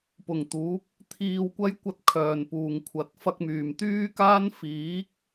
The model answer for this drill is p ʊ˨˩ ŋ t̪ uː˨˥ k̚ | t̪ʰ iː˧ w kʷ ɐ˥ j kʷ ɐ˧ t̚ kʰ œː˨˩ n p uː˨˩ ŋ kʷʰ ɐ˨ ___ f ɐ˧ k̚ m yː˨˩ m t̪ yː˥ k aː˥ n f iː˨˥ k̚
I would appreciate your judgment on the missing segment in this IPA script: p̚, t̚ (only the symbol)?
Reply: t̚